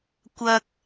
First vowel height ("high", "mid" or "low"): low